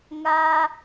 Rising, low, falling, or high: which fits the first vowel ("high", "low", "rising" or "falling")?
high